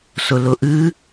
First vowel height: high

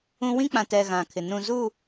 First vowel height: high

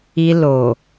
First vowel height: high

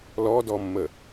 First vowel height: mid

